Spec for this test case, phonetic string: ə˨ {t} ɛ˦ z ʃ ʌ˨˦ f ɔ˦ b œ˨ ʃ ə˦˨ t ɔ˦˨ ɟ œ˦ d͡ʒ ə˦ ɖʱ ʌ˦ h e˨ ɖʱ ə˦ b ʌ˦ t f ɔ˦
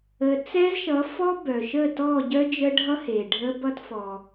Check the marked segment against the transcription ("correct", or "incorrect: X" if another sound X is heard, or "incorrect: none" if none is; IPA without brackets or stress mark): incorrect: t͡s